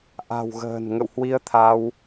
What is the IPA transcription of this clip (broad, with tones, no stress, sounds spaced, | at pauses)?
ʔ a̤˨˩ w ɣ ə̤ː˨˩ n ŋ ə̰˧˨ w h w i˧ ə̯ t̪ʰ a˧ w